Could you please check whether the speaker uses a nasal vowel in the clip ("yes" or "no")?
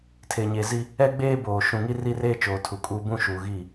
yes